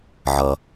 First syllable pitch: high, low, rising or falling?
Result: low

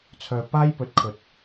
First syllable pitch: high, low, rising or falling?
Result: low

